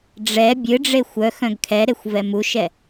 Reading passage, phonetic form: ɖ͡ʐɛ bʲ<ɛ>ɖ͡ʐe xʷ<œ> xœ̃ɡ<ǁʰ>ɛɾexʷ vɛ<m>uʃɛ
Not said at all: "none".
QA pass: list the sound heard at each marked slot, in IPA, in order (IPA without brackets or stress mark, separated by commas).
ɨ, œ, kʰ, m